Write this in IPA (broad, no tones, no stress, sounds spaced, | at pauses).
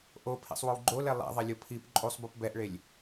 ʔ o pʰ ḛ sˤ w o w ɡ͡ǃ o l ɛ lˠ ḛ ðˤ e lʲ o pʰ i p ǃʼ u sˤ b u p b ɛ ʔ ɭ e lʲ